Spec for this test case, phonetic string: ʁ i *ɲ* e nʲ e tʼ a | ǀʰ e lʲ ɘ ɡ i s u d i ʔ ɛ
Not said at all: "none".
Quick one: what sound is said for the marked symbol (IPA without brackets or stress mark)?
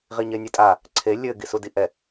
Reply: ɲ